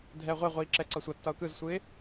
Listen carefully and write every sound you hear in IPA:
dʱ ɛ ə̯ ʁʷ ɛ ʁʷ iː ǁ ɛ ǀ ʌ sʷ ʌ tː ʌ ʊ̯ k ɯ z sʷ ɯ ɪ̯

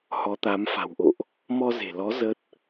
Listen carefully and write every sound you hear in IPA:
h ɔ˨˦ t̪ a˨˦ m f a̤˨˩ w ʔ o̰˧˨ ʔ | m ɔ˧ z e̤˨˩ l ɔ˨˦ z ə˦˥ t̚

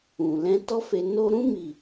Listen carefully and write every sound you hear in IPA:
ũ˨ l ɛ̃˧ t ɔ˦ f e˧ n o˧ ɾ ũ˦ m i˦˨

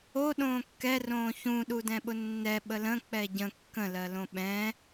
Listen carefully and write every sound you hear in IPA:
o ɗ õː kː ɛ r õː ç ũ ɗ u d ɛ̃ ɓ ʊ nː ɛ ɓ ə l ə̃ k͡p ɛ ɟ ə̃ kː ə̃ l ɜ l õ ɓ ɛ̃

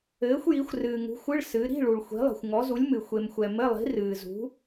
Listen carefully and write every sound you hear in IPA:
ɘː˨˥ xʷ j i˨˥ xʷ r ɨː˨ ŋ ṳ˨˥ xʷ ɨ˧˥˧ ɭ s ɨ˨˥ ɾ i̤˧˥˧ ɭ u˨ ɭ xʷ i̤˨˥ lˠ i̤˨ xʷ ŋ ɔ˨˥ z u˨˥ lʲ m ɨ˨ xʷ e˨ m xʷ ɛ˨ m ɘ˧˥˧ lˠ i̤˨˥ r ɨː˨ z ṳ˨˥

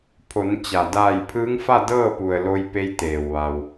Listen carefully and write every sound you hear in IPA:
pʰ o˩˧ n t͡ɕ a˩ d aː˧˩ j pʰ ɯː˧˥ ŋ f a˥˨ d ɤː˥˨ p u˩ ə̯ l o˧ j p e˧ j t̪ eː˩ w ʋ a˩ w

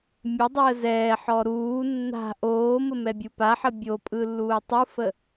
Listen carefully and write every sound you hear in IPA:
mʲ ə dˤ əː z ɛː ħ ɔ ɾ uː nː a̤ ʔ oː m ə m ɛ bʲ u p a ħ ə bʲ o pʼ ɯ lː uː tˤ ɯ f ə

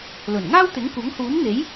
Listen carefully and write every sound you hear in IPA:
l ɵ˨˩ n ŋ aː˥ w t̪ ɪ˨˥ ŋ kʷ ɐ˨˥ ŋ h uː˨˥ n n̪ e˨˥ j

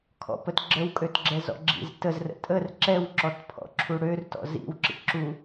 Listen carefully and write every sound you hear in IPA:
kʰ ɔ̰ p ə t ɡ͡ǁ ə w kʼ ø t ɡ͡ǁ ɛ z ɔ̰ ɡ͡ǁ ḭ z t ə z r ə̰ tʼ ə r ǁ ɛ w ǁ ɔ t pʰ ɔ̰ ǁʰ u ɽ ø r t ɔ̰ z ḭ w ǁ ḭ ǁ u

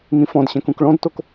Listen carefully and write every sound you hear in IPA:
ŋ ĩ f ɔ̃ d ɕ ɛ̃ k ũ k ɭ ɔ̃ d t o k

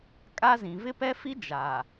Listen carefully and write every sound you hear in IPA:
kʼ a˦ z ĩ˨ v ɪ˦ p ɛ˦ f i˦ d͡ʒ aː˨

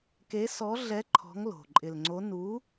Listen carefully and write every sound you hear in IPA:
k e˨˥ s ɔ˨˥ ɮ ɛ˨˥ ǃʰ ɔ̤˨˥ ŋ l o̤˨˩ ǃʼ ɪ˨˩ l ŋ͡ǀ o˨˥ n u˨˥

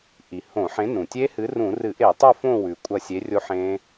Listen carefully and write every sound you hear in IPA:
ʔ i˩ h õ˧˩˧ ħ ẽ˨˥ n ũ˩ tʲ e˦˥ h ɨ˨˥ r ũ˧˩˧ r ɨ˧˩˧ ʔ e˧˩˧ tˤ ɨ˦˨ f õ˦˨ w ʉ˩ kʷʼ ɐ˦˨ sʲ e˨˥ rʲ o˦˥ ħ ẽ˦˥

